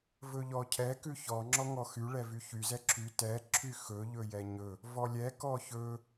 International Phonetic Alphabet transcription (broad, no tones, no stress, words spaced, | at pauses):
vɵʎɔcʰɛ kʉçɔ ŋ͡ǁɔŋɔxy ɭɛvyçy zɛǁʰy tɛ ǁʰyxɵ ʎɵjɛɲɵ | vɔlʲɛ kɔçɵ